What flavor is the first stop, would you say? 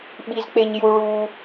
implosive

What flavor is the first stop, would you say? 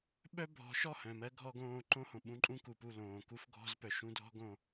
implosive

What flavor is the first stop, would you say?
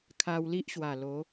aspirated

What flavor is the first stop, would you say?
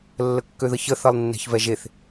plain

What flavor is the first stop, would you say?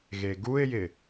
plain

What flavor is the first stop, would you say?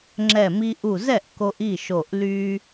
click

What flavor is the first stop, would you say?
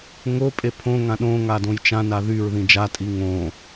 ejective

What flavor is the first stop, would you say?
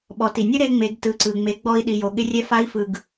implosive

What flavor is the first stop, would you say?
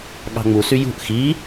implosive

